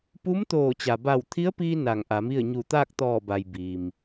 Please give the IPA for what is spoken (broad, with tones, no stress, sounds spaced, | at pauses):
p u˧˥ m t̪ oː˧˩ t͡ɕ a˩ b a˧˩ w t̪ʰ i˧˥ ə̯ p iː˧ n a˧˩ ŋ ʔ a˩˧ m i˥˨ ə̯ ɲ u˧˩ t̪ aː˥˨ k̚ t̪ ɔː˧˩ b a˩ j b iː˩ m